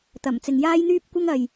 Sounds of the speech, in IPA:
t̪ ɐ˨˩ m t͡s ɪ˨ ŋ j aː˥ j n̪ yː˥ p̚ kʷ ɐ˥ ŋ ɐ˨ j

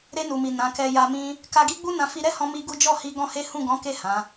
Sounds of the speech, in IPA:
ɾ e˧ n u˨ m i˨ n ã˨˦ k ɛ˧ j a˧ m ĩ˦ | k a˧ ɡ i˦ ɡ͡b u˦ n ã˧ f i˧ ɾ ɛ˦ h ɔ̃˧ m i˦ ɡ u˦ d͡ʒ ɔ˦˨ h i˧ ɡ ɔ̃˦ h e˦ h ũ˦˨ ɡ ɔ̃˨˦ k e˦˨ h ã˨˦

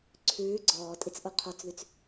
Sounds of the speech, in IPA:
ǀʰ ʉː ɡ͡ǀ ɔː tʼ i t͡s ʔ o qʰ ɔ t͡s ð y t͡s

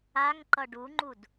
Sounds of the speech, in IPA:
a ŋ ǃ ʌ ɖ u ŋ͡ǃ u d

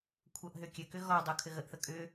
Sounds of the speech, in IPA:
kʷʰ ɤ ʔ ɦ ʏ kʲ ɘ k ʏ ɣ ɔ dˤ o kʰ ɘ ɣ ə ʔ θ ə kʼ ʏ

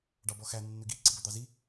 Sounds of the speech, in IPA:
ɖ ɑ b ɔ x æ nː ʏ ɡ i ǀ i b ɵ d̪ ɑ z i

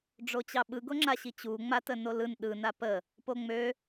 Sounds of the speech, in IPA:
ɖ͡ʐ o t͡ɕ ɑ ɓ ɯ ɡ o ŋ͡ǁ a ɕ i t͡ɕ u ŋ͡m a t ə n o l ɯ n ɗ ɯ n a p ə | p o ŋ͡m ø

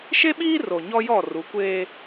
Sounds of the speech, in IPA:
ʃ e˦ ɓ iː˦ r o˨ ɲ ɔ˦ j ɔ˦˨ r u˨˦ kʷ eː˦

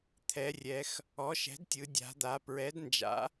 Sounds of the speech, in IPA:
t̪ʰ ɛ˩˧ rʲ ɛ˩˧ x | ɔ˩˥ ʃ ɛ̤˩˥ d tʲ ɯ˩˧ dʲ a̤˩˧ d̪ a˩˧ p ɹ ɛ˩˥ d n d͡ʒ a̰˩˥

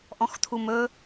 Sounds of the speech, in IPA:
ʔ ɔ̃ x tʰ u m ɵ

